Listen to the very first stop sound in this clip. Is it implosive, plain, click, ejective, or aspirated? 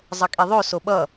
ejective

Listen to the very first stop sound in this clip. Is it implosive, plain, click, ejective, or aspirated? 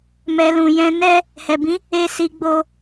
plain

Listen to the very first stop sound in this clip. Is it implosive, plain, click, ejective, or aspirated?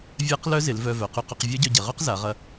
plain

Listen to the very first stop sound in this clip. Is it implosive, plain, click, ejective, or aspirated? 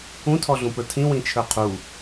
aspirated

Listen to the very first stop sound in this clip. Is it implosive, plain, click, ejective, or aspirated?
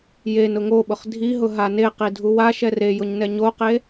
implosive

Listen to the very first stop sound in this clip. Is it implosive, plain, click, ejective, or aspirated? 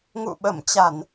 implosive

